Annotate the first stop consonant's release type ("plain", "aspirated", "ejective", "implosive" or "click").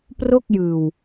plain